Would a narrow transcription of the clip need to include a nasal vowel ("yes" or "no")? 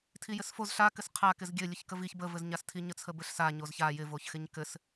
no